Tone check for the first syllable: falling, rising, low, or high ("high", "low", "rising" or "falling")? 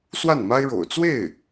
falling